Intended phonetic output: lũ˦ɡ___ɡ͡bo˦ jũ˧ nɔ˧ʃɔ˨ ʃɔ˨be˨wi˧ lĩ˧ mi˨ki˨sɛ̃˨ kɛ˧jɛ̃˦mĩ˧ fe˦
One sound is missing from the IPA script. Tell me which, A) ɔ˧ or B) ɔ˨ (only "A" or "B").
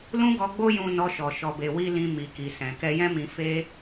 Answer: A